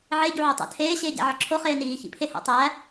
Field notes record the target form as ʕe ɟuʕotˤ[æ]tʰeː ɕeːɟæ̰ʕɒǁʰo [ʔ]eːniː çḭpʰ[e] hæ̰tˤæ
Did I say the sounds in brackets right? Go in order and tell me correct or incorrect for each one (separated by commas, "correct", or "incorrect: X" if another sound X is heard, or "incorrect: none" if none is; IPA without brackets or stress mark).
incorrect: æ̰, incorrect: χ, correct